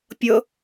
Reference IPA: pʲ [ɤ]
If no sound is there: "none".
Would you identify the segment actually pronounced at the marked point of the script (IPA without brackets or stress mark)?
ɤ